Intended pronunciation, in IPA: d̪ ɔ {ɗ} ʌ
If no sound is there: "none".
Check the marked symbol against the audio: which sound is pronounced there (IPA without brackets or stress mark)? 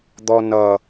n